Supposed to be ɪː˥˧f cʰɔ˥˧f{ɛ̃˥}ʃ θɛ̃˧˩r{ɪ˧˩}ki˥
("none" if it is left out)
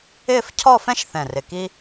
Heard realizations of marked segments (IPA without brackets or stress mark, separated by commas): ɛ̃˥, ɪ˧˩